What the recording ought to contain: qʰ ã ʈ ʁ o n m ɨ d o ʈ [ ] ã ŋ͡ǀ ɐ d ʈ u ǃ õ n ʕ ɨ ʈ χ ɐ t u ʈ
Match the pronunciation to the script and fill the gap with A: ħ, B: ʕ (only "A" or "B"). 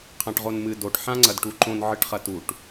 A